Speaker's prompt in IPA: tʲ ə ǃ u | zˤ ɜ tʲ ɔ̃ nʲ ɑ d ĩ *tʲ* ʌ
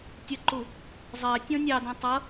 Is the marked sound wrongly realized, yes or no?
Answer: yes